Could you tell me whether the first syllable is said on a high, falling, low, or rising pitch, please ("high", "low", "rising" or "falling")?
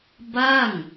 falling